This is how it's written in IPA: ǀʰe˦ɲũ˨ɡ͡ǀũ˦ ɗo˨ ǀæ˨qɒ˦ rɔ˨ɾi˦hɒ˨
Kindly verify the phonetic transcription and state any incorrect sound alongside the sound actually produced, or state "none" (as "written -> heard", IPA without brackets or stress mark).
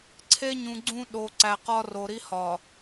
ɔ˨ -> o˨